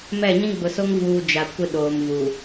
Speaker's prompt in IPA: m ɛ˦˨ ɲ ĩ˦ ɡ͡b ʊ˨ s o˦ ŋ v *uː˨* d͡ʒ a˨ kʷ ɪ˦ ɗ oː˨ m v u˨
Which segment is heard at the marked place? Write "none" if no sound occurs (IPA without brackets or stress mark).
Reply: uː˨